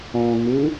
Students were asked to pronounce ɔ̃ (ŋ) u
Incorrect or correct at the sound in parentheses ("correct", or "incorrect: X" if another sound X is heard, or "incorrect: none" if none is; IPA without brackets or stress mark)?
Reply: correct